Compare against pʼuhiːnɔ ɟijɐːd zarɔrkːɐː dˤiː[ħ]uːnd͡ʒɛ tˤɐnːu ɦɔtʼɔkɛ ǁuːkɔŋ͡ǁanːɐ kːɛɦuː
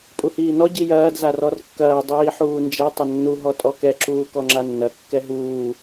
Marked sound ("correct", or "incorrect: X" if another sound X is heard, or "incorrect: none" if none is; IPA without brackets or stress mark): correct